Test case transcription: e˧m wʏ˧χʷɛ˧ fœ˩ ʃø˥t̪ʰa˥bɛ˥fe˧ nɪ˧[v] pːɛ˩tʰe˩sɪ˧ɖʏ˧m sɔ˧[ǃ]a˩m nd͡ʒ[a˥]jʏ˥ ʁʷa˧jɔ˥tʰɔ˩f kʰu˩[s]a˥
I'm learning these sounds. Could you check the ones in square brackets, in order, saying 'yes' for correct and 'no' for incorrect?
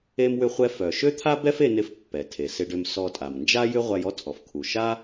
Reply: no, no, yes, no

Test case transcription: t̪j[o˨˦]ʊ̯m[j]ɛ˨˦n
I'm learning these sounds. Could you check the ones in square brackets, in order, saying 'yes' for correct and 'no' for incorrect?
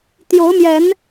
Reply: yes, yes

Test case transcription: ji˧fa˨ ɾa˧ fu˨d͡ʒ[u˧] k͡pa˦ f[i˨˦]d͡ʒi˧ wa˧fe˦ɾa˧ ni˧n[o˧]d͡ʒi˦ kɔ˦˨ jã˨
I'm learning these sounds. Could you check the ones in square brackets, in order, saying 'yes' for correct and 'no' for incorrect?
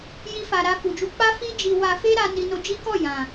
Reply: yes, no, yes

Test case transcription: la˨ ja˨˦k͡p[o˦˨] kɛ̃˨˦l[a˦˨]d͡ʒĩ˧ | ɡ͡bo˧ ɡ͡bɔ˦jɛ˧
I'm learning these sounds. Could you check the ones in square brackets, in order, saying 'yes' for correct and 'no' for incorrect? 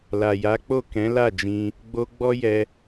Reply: yes, yes

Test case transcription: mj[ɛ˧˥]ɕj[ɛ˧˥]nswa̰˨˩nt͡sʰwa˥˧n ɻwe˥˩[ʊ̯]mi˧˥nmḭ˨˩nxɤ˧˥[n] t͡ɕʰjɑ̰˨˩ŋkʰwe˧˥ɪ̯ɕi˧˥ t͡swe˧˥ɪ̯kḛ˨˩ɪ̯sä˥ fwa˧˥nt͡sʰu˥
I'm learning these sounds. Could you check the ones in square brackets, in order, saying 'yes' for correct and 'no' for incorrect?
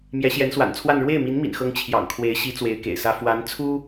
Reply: yes, yes, no, no

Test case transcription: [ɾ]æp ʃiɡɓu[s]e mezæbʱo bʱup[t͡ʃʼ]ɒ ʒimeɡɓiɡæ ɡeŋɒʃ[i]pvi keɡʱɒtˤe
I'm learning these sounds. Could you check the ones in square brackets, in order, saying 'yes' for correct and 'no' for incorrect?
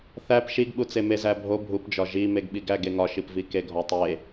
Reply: no, no, no, yes

